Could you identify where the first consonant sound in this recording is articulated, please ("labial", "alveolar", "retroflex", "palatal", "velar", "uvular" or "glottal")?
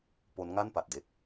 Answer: labial